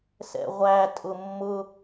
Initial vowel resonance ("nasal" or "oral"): oral